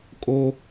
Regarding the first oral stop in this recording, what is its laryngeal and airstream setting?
ejective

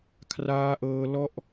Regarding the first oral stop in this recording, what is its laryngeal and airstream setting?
aspirated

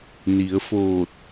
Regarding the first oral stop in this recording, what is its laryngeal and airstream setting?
plain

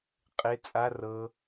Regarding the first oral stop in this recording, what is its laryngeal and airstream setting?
ejective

